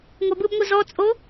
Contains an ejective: yes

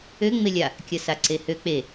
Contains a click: yes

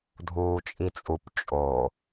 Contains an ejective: yes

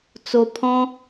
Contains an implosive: no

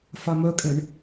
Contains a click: no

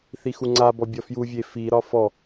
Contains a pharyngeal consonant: no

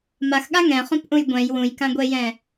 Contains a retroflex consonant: no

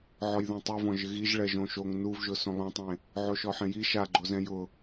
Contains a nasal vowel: yes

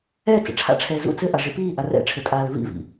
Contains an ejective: yes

